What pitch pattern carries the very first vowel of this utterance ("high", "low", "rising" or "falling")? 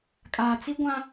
low